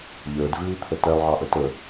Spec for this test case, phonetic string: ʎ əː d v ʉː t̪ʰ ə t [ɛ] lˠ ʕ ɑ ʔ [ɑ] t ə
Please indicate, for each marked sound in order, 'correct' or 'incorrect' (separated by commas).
correct, incorrect